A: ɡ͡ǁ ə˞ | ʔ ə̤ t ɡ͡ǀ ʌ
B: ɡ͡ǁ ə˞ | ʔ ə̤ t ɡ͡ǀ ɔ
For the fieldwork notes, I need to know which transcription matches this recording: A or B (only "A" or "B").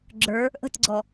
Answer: B